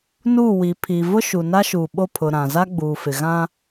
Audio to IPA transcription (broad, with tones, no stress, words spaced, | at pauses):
nuː˦˨ wi˨pʰi˨ vʊ˦ʃu˨na˦ ʃu˨ɓo˦˨pʰʊ˨ ɾã˨ za˦ɡ͡buː˨fɪ˨ɣã˦